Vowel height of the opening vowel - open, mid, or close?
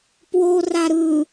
mid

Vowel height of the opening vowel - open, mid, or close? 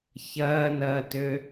open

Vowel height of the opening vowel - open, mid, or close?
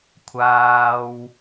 open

